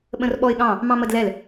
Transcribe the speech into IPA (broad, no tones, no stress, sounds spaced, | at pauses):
ɓ ə̃ r ɓ ɔ ɪ̯ ɠ ɑ̃ | m ɑ̃ m ə d l ɛ l